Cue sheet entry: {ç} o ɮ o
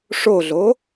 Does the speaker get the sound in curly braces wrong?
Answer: yes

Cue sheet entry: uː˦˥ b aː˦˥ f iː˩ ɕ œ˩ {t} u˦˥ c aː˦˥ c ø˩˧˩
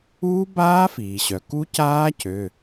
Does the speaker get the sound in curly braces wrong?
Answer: yes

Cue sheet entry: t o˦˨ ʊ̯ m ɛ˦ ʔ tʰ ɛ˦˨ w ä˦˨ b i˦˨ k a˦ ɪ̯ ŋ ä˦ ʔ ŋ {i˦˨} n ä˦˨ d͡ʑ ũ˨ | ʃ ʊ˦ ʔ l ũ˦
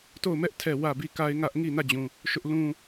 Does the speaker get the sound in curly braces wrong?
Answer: no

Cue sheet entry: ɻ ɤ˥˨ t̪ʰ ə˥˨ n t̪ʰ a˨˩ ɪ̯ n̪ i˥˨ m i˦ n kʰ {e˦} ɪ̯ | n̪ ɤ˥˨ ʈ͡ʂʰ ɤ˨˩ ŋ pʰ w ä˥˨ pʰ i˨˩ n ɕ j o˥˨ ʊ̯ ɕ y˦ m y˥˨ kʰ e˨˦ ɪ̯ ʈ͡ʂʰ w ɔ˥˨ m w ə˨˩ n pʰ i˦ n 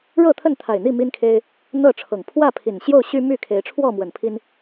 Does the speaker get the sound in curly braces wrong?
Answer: no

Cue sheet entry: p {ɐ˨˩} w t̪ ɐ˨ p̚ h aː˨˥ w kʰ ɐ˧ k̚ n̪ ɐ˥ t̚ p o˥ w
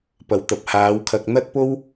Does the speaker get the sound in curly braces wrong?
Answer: no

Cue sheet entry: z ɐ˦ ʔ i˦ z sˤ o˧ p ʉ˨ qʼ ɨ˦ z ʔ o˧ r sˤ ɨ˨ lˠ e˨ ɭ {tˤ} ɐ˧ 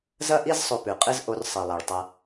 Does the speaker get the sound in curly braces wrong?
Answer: no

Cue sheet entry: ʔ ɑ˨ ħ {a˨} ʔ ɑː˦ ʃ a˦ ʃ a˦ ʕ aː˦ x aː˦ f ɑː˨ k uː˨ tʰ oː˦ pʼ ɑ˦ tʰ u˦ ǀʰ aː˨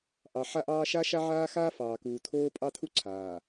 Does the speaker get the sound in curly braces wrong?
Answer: yes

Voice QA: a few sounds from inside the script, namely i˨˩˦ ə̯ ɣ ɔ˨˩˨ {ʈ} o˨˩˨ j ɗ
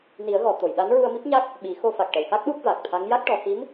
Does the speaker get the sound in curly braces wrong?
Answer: yes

